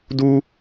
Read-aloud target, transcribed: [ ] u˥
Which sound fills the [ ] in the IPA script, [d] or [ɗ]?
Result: d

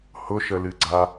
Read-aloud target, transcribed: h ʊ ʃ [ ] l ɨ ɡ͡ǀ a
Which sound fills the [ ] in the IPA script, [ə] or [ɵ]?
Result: ə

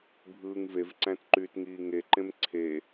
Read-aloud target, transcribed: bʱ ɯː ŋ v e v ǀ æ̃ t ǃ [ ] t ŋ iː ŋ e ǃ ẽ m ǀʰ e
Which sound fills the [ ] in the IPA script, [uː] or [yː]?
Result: yː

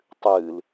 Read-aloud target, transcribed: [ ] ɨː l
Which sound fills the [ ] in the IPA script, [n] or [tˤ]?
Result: tˤ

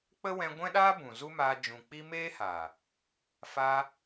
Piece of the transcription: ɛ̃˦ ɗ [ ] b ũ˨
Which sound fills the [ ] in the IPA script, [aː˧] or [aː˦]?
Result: aː˦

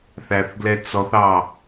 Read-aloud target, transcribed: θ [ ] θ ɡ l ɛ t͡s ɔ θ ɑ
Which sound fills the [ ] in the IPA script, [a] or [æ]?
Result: æ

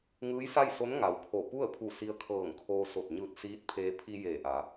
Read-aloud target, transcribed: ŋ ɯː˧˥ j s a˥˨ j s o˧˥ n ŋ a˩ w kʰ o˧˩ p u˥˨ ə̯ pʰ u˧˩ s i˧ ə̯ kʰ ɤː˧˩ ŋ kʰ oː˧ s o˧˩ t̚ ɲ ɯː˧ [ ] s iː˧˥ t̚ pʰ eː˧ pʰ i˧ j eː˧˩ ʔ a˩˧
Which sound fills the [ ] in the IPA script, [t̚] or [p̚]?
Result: t̚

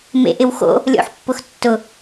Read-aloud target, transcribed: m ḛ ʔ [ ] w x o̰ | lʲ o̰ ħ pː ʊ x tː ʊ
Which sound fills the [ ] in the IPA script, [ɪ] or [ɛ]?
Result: ɪ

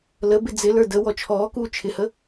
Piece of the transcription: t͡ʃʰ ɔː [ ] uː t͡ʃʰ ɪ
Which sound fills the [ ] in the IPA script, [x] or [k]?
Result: k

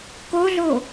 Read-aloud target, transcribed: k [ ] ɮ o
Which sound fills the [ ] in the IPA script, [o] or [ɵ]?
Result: o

